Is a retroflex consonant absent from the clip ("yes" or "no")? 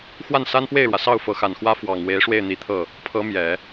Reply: no